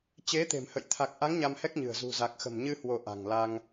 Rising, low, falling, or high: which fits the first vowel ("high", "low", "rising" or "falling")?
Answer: rising